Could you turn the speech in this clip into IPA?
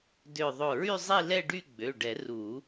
d ø˧˩ ðˤ o˧˩ ɹ y˥˧ zˤ i˥˧ l ɛ˥˧ ɖ y˥˧ ɡ͡b ø˩˧˩ ɖ ɛ˨˩˦ r u˨˩˦

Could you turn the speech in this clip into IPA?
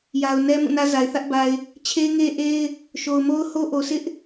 j a˨ ʊ̯ n ɛ˦ m ũ˦˨ n ä˦ z a˨ ɪ̯ θ ä˦ ʔ b a˨ ɪ̯ | t͡ɕʰ e˦ ɪ̯ ŋ e˦ ʔ e˦ ɪ̯ | ʃ o˨ ʊ̯ m o˦ ʊ̯ h o˦ ʔ o˨ sʰ ɪ˦ ʔ

